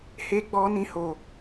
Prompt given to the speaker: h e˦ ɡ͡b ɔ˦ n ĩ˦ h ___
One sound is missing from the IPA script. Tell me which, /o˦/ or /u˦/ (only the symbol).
o˦